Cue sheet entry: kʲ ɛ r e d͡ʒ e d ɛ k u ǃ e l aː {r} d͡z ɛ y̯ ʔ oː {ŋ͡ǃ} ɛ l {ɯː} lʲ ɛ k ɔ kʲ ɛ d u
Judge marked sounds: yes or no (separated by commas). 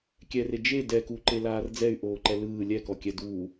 yes, no, yes